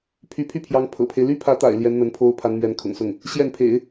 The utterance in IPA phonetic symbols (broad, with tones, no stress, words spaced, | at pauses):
pʰy˧˥pʰy˥˩pʰjɑ˧˥ŋ pʰɤ̰˨˩pʰe˦ɪ̯ ly˥pʰä˧˥t̪a̰˨˩ɪ̯ ljɛ˧˥nn̪ə˧˥npʰo˥ʊ̯ pʰa˧˥n mɥɛ˧˥nkʰʊ̰˨˩ŋsʊ˥˩ŋ | ɕjɛ˥˩npʰḛ˨˩˦ɪ̯